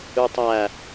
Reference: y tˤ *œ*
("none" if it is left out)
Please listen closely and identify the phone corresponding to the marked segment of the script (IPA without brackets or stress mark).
æ